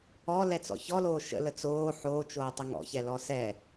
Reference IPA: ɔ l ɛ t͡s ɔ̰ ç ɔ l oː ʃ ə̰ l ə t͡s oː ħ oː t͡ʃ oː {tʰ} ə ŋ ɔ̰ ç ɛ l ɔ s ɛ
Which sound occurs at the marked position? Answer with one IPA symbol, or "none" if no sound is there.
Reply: tˤ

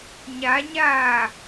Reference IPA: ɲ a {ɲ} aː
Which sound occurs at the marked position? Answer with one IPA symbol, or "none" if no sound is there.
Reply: ɲ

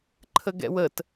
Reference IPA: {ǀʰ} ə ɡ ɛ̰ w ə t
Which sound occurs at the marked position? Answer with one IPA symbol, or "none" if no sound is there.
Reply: ǃʰ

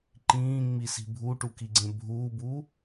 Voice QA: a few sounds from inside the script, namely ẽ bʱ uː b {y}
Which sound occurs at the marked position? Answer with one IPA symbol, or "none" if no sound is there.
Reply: u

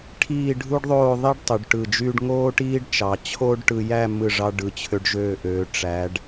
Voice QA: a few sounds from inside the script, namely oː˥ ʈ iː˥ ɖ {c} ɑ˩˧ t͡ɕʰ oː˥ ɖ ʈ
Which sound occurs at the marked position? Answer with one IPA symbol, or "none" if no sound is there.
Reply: t͡ʃ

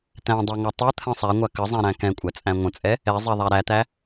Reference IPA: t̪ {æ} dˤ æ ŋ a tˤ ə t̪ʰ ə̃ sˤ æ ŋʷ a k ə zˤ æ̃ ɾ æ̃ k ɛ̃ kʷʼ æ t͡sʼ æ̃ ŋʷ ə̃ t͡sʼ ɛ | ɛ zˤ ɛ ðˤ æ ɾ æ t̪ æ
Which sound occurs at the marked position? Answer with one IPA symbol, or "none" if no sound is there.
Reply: æ̃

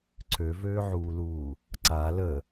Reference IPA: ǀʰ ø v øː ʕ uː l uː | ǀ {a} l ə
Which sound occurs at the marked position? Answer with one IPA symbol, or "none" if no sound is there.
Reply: a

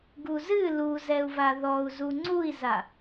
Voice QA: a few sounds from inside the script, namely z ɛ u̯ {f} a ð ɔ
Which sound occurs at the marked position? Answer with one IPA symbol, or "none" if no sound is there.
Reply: v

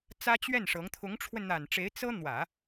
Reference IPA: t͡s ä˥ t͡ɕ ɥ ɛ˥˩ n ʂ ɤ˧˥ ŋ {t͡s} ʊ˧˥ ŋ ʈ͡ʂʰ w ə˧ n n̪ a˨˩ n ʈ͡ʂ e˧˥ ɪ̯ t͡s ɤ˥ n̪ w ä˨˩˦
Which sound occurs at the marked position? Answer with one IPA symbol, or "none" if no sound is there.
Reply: t̪ʰ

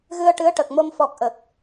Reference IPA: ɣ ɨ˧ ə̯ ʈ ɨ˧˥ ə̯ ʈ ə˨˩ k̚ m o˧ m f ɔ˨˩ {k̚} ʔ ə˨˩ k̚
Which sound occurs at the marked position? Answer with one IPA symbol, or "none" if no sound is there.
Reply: k̚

